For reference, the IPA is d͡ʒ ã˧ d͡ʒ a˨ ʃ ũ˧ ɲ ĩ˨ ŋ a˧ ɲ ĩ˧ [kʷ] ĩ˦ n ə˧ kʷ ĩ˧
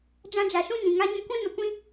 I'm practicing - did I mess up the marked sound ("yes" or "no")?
no